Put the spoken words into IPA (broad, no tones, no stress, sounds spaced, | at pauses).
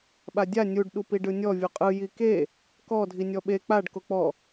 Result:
ɓ a dʲ a nʲ u ɖ ɗ u p i ɖ ɯ nʲ ɔ vʲ o qʼ ɯ j i k e | k ɔ dʱ i nʲ ɔ ɓ e k͡p a ɖ k o k͡p ɔ